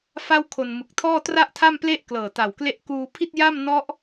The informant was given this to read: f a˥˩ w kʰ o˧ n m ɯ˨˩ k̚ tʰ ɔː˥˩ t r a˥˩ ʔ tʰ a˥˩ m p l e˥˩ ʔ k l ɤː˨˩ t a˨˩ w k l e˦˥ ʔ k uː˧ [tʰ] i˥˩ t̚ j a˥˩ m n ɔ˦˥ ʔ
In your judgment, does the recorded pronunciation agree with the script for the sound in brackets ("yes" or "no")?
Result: no